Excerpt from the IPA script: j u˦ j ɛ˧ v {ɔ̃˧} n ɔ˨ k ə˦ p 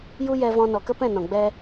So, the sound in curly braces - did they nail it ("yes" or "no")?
yes